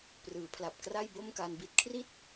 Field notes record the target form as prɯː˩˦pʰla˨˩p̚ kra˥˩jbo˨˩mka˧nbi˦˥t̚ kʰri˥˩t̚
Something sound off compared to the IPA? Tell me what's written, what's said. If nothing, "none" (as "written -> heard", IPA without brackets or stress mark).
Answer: o˨˩ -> o˥˩